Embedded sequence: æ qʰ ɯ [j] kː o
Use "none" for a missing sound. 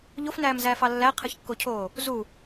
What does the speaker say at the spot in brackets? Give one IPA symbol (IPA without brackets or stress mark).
ç